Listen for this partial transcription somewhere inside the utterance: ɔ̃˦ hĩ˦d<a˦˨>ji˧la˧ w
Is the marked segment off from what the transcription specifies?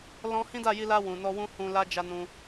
no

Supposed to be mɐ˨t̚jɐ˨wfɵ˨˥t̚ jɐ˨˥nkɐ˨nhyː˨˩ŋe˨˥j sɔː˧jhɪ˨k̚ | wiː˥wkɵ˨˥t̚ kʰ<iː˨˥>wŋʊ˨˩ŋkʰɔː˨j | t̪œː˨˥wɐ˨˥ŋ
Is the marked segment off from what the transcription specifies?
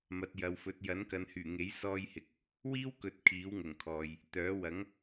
no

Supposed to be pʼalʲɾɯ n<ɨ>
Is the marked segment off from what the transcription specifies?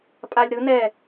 yes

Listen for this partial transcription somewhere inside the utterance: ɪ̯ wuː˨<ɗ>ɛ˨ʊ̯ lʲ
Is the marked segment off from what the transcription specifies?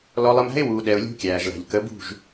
no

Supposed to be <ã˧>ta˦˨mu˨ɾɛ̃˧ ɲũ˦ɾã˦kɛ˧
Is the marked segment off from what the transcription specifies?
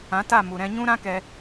yes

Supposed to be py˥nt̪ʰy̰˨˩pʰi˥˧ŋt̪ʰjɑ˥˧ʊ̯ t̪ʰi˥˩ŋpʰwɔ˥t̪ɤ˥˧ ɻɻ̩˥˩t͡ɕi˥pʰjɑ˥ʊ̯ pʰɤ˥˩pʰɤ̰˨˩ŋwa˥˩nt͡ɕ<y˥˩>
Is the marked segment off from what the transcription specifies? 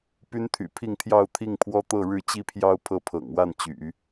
yes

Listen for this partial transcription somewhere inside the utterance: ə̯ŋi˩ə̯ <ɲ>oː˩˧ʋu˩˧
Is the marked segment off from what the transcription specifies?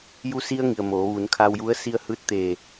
yes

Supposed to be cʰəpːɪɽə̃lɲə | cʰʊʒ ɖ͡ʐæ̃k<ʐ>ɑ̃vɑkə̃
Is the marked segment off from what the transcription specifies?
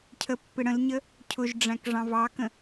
no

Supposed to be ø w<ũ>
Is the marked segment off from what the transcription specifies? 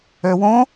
yes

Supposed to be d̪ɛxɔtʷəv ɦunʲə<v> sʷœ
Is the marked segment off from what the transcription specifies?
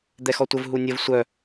no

